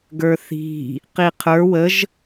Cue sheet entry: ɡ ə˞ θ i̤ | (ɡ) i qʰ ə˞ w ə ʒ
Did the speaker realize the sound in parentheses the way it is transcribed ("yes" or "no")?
no